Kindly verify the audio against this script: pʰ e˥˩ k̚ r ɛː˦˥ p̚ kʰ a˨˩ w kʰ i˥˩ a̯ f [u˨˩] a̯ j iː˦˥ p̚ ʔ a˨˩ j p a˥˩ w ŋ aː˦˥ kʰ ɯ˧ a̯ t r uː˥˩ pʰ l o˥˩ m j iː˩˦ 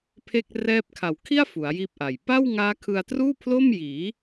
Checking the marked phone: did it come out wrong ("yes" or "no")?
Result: yes